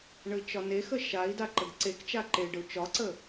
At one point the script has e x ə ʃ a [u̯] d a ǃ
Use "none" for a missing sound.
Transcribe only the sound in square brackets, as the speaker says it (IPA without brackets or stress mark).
i̯